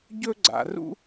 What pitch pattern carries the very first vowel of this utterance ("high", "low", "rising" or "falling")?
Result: high